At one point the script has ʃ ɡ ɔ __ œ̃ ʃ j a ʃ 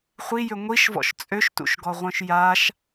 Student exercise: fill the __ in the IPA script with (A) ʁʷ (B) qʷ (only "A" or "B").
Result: A